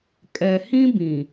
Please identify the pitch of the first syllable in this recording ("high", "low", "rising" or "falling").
low